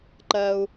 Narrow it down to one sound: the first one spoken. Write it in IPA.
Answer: ǃ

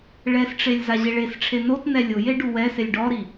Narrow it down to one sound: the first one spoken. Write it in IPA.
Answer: ɭ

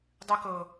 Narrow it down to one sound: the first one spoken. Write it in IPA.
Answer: dˤ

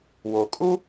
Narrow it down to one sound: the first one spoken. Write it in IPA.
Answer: w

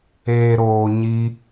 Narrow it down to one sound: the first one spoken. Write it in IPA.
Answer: eː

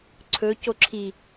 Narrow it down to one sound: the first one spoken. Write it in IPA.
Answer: ǀʰ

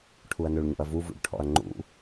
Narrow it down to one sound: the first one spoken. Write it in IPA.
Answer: ʈʰ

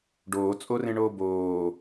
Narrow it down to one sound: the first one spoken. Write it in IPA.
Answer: ɖ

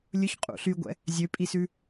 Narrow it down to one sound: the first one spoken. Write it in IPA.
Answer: lʲ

